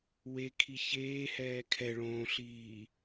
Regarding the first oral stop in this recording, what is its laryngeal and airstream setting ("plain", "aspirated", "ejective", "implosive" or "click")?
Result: aspirated